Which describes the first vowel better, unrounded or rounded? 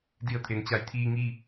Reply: unrounded